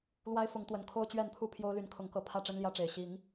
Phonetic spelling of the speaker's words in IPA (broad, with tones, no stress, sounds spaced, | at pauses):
l w a˦ ɪ̯ f ʊ˨˦ ŋ t̪ w ə˨˩ n kʰ o˦ ʊ̯ t͡ɕ ɥ ɛ˥˨ n pʰ u˥˨ pʰ j o˦ ʊ̯ l y˨˦ n kʰ ʊ˨˦ ŋ k ɤ˨˦ pʰ ä˥˨ ʈ͡ʂ ə˦ n l j ä˦ ʈ͡ʂ e˨˩ ɪ̯ ɕ i˨˦ ŋ